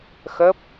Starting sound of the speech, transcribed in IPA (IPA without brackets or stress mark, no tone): x